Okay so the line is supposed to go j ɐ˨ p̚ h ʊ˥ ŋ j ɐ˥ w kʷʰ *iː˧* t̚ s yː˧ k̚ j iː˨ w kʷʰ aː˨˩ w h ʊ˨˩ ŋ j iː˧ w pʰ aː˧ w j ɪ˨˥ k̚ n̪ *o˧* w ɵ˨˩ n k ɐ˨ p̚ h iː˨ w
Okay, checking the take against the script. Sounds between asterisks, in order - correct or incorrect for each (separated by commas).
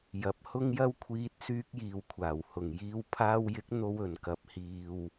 correct, correct